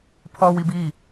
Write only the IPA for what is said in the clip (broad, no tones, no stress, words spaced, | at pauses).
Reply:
pʰɔw ibi